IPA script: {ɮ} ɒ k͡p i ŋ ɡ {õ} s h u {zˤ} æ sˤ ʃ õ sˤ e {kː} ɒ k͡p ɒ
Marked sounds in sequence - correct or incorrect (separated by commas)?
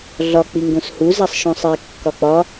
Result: correct, correct, incorrect, correct